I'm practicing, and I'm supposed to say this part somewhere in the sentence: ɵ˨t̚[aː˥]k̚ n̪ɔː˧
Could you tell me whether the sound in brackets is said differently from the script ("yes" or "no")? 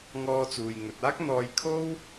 no